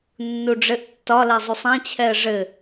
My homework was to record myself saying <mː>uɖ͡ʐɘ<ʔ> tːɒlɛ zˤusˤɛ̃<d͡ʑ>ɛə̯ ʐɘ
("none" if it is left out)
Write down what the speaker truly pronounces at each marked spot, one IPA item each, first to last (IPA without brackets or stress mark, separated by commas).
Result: nː, ʔ, t͡ɕʰ